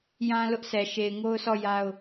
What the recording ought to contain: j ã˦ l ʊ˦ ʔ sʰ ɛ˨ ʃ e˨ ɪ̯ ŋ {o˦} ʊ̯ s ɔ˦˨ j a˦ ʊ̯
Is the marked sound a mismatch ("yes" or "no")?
no